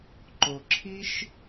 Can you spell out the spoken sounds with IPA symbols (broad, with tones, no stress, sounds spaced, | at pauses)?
ǃ o˨ ǁʰ i˦ ʃ